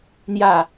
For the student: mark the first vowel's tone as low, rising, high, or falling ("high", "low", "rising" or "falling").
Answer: falling